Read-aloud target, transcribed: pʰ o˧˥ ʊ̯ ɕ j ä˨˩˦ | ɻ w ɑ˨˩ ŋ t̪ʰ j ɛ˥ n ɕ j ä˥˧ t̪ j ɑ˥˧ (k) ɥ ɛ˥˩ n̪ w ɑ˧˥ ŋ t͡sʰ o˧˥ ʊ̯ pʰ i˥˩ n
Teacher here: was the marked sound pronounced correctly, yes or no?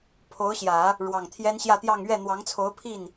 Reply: no